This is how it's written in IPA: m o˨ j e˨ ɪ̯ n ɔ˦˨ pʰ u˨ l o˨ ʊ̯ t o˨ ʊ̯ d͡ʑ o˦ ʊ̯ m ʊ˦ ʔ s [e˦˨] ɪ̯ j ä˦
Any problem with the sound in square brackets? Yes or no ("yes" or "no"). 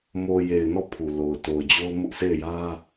no